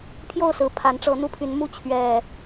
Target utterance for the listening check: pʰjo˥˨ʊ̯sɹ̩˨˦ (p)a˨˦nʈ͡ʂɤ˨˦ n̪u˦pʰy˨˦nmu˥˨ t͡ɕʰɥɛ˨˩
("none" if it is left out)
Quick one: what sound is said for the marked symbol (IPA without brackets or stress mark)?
pʰ